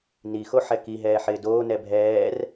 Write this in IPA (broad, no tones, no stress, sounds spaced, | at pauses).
n i x o ħ ɛ k i ɦ ɛː ħ ɪː d oː n ɛ bʱ ɛː r